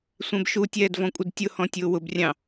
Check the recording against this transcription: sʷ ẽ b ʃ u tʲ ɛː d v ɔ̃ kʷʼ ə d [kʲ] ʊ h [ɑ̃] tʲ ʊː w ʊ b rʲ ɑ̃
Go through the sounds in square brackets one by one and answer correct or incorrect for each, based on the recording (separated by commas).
incorrect, incorrect